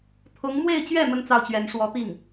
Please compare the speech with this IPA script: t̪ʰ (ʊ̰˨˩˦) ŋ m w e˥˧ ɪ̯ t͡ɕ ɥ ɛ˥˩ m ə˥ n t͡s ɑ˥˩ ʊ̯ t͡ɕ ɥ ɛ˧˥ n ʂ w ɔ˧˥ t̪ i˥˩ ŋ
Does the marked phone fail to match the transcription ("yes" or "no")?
yes